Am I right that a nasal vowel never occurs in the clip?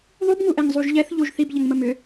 yes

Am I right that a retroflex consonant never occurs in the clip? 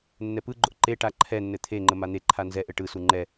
no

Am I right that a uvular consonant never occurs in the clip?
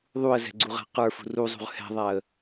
no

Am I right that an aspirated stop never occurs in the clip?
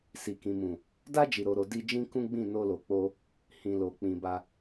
yes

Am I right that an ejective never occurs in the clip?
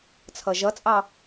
no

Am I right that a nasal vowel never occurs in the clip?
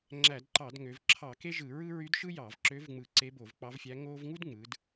yes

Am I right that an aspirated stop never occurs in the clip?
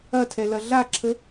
no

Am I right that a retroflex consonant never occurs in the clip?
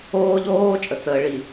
no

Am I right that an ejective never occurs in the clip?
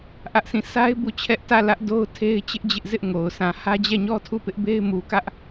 yes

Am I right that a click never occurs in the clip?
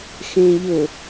yes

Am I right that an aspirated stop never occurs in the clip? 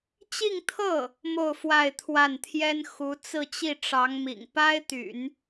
no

